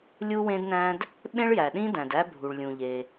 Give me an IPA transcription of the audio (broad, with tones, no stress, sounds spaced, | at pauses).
lʲ u˥ w ẽ˥ d n æ̃˥ d | ɓ ẽ˥ ɭ j æ˩ ɗ ĩ˥ d æ̃˩ d æ˥ bʱ u˩ ɭ lʲ ũ˩ ʎ e˩